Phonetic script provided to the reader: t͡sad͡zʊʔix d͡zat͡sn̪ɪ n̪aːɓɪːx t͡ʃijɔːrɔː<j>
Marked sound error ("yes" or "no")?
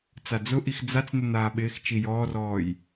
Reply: no